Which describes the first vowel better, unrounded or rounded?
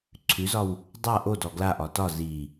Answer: rounded